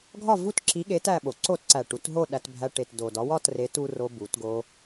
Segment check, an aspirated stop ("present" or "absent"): absent